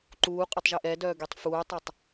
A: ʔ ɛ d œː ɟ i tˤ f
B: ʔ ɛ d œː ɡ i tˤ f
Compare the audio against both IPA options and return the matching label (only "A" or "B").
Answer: B